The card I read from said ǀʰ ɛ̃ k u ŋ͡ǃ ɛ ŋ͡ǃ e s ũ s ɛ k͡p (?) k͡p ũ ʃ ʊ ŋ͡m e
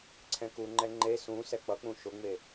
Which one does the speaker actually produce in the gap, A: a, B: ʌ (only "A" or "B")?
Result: B